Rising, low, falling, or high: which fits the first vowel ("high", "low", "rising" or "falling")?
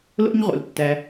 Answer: high